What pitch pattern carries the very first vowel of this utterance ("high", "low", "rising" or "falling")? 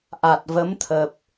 low